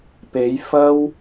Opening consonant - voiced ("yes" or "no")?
no